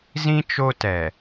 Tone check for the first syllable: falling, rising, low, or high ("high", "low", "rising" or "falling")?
high